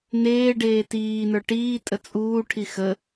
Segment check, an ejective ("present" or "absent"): present